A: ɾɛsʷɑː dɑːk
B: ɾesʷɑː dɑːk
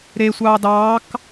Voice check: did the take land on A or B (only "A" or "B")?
B